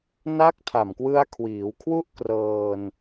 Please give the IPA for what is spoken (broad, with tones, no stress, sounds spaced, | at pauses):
n a˦˥ k̚ tʰ a˨˩ m k w ɯ˧ a̯ kʰ w iː˩˦ w kʰ w u˥˩ ʔ k r ɤː˧ n